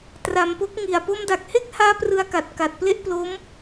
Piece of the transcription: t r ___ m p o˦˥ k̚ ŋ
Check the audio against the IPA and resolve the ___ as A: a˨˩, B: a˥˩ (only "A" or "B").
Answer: A